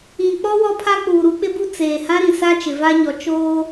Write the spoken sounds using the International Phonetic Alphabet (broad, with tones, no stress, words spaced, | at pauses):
ĩ˨k͡pɔ˦ wɔ˦pʰa˦ k͡puː˨ɾu˦k͡pɪ˦bu˦ t͡seː˨hã˦ɾĩ˨ sa˦ t͡ʃɪ˨va˦ɲɔ˨ t͡ʃoː˦